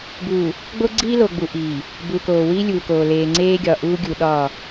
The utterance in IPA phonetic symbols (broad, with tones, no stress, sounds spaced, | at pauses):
b uː˨ | ɡ͡b o˦ ɡ͡ǀ iː˦ l o˨ ɡ͡b u˨ ʔ iː˨ | b u˨ k oː˨ w iː˦ lʲ uː˨ k oː˨ l eː˨ ŋ͡ǀ eː˦ ɡʲ ɒ˨ ʔ uː˦ ɡʲ u˨ ɗ ɒː˦˨